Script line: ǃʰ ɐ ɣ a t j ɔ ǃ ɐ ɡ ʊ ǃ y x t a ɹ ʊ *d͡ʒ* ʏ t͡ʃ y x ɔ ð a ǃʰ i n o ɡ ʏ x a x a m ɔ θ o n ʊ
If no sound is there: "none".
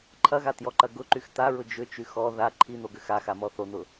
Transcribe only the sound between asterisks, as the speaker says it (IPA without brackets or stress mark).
d͡ʒ